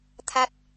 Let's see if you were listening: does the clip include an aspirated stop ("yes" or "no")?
yes